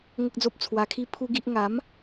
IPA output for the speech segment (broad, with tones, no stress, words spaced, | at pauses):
ŋə˦k̚d͡zo˦p̚t͡sʰwa˧kʰi˦ pʰu˦ɡi˦ʔ ŋa˨˦m